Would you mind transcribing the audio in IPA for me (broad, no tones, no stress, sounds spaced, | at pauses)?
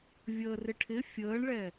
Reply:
vʲ əː r ɪ ʈʰ ɪ fʲ əː ɳ ɭ ɛ